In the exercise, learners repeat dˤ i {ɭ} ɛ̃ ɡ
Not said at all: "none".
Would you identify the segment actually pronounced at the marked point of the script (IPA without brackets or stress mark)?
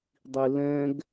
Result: l